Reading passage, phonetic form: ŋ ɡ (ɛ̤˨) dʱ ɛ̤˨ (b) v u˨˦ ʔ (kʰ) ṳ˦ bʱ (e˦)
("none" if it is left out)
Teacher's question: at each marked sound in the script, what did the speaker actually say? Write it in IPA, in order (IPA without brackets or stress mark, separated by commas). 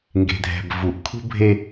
e̤˨, b, kʰ, e˦